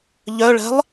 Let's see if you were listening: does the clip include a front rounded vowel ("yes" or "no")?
yes